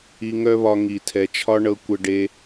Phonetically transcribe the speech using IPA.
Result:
i˧ŋœ˦βɒ˧ ŋi˨tʰɛ˨t͡ʃʰɒ˦ ɳɤ˧kʷə˧ɖe˧

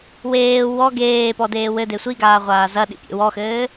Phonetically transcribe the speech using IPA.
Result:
weː wɔ ɡeːpɔdeː wɘde sʷiɡaːʁʷaː zɐɗḭpʲḛ wɔxɘː

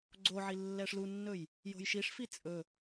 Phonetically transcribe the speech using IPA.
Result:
ɡ͡ǀoʕi lːɛʂlunːɵj | jo̤jʃiʂfi t͡sʼɵ

